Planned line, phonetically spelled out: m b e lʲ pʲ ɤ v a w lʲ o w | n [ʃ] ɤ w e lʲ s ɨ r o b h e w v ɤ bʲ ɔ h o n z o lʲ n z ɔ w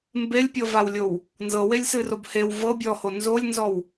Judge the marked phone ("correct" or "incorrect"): incorrect